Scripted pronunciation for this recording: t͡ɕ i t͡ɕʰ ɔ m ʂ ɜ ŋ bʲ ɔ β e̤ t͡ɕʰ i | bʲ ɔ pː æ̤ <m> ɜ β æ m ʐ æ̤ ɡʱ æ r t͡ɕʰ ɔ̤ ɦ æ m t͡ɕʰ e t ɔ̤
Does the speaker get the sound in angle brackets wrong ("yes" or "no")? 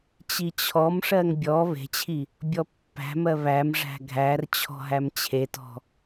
no